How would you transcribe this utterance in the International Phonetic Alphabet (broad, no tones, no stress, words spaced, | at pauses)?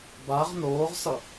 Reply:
baʁ noːʁsʌ